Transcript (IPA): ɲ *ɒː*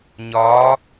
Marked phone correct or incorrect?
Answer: correct